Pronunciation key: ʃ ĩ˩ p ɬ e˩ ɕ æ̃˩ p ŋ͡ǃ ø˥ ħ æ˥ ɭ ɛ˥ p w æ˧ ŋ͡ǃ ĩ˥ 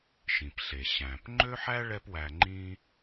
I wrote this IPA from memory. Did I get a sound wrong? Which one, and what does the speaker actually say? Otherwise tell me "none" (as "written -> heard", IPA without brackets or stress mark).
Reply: none